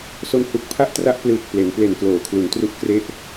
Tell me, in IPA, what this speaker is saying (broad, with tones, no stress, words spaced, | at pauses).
so˦˥nhu˨˩k̚pʰa˥˩ʔ tra˥˩ʔplɯː˨˩k̚ ple˩˦n ple˨˩n kloː˩˦kʰlu˩˦ntru˦˥ʔ kre˥˩ʔ